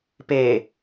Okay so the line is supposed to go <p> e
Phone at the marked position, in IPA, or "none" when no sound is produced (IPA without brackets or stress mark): p